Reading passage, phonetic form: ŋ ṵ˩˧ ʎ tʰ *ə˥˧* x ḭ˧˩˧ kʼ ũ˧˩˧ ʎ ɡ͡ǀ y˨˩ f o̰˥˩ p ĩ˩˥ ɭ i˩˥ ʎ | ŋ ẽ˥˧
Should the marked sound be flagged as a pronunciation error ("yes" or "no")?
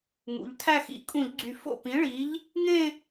yes